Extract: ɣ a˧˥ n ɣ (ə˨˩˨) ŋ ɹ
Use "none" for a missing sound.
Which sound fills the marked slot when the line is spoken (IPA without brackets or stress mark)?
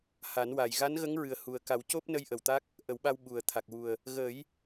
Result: ə˧˥